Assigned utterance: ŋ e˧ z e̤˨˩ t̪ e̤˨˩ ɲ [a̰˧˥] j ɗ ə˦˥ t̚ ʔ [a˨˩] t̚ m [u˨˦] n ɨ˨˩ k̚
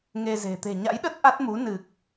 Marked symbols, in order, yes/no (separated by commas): yes, no, yes